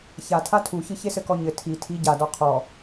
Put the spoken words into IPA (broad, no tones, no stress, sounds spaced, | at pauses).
ç a tʰ a tʰ u ç ɨ ç e s ɘ k ɔ ɲ ɘ tʰ i tʰ i ɟ a d ɔ qʰ ɔ